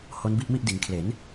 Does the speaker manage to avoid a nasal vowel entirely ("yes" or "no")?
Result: yes